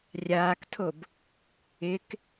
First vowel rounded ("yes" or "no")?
no